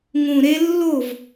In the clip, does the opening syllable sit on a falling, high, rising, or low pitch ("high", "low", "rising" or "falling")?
low